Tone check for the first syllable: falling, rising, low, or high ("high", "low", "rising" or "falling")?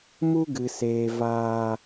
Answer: high